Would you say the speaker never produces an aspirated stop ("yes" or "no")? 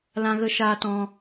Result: yes